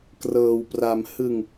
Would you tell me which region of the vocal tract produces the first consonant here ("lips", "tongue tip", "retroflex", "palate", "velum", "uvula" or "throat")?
velum